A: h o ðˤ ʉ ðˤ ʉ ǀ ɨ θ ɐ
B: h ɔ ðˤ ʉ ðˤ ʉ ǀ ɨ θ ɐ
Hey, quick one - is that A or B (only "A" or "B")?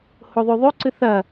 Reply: A